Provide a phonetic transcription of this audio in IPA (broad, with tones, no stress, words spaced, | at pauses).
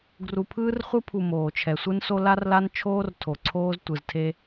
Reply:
ɡru˨pʰɯː˦rχʷɯ˦pʰu˨ moː˨t͡ʃʰɛ˨ sʷɯ˦nso˦ la˦rla˦nt͡ʃʰoː˦r tʰo˨ǀʰoː˦z tʷɯ˨ztʰe˦